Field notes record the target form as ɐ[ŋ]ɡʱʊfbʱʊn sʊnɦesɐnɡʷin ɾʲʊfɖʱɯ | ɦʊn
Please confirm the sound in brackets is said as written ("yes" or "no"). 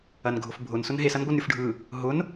no